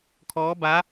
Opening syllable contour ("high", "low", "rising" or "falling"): rising